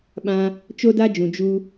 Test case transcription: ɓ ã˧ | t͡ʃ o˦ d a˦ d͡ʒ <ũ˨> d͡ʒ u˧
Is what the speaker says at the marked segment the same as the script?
yes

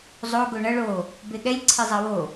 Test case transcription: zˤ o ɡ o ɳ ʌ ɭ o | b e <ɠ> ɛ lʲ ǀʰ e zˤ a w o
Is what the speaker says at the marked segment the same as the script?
yes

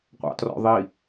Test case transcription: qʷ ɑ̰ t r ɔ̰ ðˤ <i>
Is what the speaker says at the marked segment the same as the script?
yes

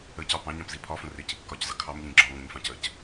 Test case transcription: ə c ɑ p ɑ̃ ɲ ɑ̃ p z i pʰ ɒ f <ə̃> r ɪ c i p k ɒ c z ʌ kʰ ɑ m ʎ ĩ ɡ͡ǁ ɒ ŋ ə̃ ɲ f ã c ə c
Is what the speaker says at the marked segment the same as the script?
yes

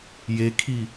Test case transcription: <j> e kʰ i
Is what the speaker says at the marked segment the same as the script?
yes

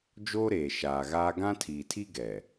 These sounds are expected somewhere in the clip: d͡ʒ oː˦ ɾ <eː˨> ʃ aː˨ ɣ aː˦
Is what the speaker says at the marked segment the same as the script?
yes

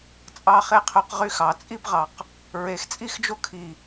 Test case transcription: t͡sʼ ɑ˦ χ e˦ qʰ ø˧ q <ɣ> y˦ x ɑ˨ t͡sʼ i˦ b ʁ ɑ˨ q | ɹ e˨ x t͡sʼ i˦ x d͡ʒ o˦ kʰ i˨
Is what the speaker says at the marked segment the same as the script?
no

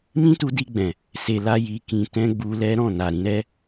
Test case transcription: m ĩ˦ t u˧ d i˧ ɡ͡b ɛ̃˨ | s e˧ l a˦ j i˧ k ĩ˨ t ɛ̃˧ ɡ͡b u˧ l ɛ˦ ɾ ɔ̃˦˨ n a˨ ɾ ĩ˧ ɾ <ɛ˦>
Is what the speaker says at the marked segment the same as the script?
yes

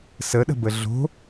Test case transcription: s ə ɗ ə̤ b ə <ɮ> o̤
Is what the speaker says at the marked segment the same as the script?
yes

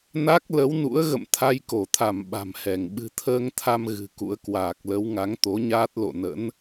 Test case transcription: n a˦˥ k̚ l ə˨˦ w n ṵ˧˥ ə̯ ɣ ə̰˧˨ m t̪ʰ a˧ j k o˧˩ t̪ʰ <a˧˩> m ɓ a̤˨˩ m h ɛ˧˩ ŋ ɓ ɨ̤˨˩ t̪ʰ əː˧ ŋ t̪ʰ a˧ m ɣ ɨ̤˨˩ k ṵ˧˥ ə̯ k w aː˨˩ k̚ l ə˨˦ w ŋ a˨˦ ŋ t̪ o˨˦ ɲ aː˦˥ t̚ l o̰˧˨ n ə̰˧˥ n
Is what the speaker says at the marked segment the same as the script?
yes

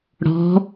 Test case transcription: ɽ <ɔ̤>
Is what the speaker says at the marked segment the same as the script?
yes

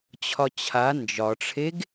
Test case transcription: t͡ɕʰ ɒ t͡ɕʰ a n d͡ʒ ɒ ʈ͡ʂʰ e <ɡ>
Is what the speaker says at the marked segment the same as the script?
yes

